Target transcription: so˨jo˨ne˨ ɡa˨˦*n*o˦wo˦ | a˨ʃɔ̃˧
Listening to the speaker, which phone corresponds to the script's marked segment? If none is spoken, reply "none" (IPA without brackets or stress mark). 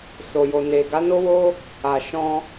n